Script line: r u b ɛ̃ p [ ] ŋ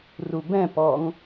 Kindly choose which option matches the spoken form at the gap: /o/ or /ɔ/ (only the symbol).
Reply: ɔ